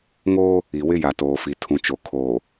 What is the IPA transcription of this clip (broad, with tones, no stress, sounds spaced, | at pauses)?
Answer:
ŋ oː˦ | i˨ w ɪ˦ j a˨ t oː˨ f i˨ tʰ ũ˨ t͡ʃ o˨ kʰ oː˨